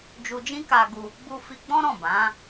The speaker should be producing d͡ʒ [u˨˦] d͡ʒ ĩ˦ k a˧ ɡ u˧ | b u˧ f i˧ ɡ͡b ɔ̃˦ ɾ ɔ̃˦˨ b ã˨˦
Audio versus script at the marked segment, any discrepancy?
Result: yes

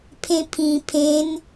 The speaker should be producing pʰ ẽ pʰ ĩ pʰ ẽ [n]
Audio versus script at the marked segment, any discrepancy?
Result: no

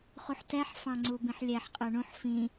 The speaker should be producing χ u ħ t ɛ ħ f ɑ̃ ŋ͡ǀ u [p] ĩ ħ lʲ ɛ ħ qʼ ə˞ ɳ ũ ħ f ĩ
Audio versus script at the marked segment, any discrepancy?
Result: yes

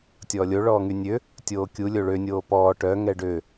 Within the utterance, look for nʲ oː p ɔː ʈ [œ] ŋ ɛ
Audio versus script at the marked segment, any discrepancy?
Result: no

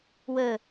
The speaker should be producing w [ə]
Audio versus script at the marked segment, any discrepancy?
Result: no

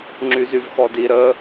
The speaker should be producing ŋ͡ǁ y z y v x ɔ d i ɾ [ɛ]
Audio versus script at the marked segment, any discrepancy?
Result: yes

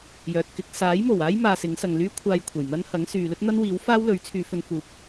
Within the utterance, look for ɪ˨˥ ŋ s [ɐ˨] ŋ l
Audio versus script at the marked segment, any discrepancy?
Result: no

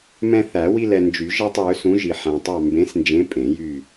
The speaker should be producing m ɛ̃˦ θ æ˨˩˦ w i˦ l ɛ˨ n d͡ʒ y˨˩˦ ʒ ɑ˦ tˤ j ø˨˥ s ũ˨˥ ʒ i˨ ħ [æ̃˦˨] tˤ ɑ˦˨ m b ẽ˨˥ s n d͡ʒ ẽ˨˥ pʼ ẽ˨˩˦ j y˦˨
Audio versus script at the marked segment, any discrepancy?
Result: yes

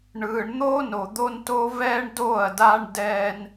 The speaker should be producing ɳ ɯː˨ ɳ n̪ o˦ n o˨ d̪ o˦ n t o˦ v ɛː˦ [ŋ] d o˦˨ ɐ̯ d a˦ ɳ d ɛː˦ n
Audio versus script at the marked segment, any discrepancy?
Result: yes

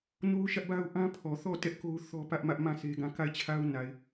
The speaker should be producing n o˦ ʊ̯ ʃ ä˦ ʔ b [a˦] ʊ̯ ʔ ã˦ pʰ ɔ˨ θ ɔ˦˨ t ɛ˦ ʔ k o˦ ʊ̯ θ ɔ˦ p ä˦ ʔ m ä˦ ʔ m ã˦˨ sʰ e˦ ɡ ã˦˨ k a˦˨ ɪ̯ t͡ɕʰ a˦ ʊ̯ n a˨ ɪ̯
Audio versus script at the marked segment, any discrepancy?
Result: no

